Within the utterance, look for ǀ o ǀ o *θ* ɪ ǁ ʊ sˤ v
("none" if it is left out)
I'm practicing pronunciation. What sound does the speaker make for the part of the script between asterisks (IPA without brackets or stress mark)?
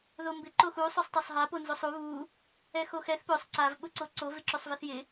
v